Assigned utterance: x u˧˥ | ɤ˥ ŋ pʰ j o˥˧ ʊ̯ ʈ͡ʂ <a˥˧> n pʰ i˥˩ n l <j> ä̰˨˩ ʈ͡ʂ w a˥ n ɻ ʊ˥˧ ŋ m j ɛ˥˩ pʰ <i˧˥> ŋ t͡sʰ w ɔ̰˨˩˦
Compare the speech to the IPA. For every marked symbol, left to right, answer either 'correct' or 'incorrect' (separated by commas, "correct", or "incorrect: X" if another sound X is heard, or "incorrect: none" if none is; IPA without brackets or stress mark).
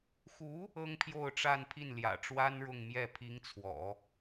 correct, correct, correct